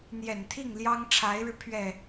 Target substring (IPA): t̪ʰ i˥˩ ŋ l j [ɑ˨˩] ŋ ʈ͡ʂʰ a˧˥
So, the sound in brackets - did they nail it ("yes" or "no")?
no